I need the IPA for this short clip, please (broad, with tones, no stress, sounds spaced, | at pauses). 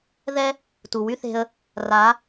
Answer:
ð ɛ˦ | t u˨ w y˦ θ e̤˧ ə̯ | r a˨˦